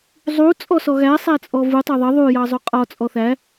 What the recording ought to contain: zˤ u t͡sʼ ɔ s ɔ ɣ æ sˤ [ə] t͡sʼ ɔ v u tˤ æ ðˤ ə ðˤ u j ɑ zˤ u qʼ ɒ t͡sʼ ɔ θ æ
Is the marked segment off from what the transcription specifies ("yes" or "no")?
yes